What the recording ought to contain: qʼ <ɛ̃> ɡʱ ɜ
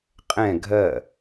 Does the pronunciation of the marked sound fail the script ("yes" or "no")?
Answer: no